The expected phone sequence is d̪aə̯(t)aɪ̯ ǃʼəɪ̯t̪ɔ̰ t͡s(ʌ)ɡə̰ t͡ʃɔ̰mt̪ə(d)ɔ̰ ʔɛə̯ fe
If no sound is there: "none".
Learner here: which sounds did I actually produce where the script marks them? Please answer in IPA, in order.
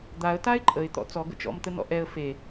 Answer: t, ɔ, n

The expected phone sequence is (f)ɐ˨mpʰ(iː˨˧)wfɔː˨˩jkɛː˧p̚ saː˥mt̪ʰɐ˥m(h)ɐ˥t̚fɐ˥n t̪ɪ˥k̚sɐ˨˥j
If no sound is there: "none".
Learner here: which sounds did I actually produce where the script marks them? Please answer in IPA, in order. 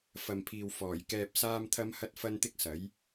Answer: f, iː˨, h

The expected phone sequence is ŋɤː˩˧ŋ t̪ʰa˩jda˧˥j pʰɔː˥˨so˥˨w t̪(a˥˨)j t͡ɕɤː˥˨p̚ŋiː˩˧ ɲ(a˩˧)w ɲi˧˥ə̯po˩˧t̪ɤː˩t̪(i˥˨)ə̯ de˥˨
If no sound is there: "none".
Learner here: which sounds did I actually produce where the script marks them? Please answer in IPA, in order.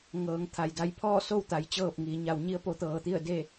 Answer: a˩˧, a˩˧, i˥˨

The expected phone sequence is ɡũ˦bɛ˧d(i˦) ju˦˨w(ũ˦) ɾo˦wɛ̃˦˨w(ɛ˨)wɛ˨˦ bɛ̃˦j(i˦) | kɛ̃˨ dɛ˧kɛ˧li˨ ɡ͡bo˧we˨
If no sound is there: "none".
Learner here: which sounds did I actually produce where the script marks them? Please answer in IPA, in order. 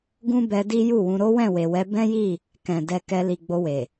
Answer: i˦, ũ˧, e˨, i˦˨

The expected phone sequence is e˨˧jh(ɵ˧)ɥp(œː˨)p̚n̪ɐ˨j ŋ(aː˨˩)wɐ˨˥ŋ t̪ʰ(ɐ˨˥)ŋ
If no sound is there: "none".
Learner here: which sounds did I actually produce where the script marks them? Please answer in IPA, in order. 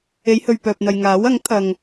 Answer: ɵ˨, œː˨, aː˨˥, ɐ˨

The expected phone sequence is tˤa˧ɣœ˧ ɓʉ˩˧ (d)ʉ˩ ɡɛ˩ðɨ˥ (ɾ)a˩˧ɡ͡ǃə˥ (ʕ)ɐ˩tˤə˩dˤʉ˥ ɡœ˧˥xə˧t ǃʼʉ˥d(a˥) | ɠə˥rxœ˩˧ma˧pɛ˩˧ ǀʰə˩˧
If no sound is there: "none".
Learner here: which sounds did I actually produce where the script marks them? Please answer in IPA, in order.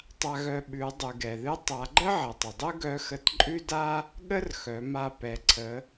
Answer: dˤ, tˤ, ʕ, a˥

